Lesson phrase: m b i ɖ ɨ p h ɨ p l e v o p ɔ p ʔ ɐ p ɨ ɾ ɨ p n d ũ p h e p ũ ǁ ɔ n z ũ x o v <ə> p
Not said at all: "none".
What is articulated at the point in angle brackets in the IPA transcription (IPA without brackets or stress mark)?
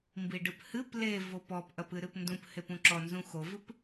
ɨ